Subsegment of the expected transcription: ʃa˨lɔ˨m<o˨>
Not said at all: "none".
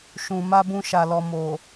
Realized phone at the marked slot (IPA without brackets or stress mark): o˨